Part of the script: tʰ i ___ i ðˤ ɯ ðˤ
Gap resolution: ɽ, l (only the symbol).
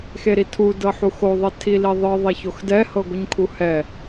l